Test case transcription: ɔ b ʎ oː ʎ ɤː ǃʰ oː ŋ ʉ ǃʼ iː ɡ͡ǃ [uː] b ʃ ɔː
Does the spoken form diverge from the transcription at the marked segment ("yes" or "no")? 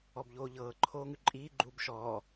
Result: no